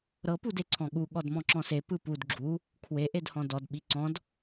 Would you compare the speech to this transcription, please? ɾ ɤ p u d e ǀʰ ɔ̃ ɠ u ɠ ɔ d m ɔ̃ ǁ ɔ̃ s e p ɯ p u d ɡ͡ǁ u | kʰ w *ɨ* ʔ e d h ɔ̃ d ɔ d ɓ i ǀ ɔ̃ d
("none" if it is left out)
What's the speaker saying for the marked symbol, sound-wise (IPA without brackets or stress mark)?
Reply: e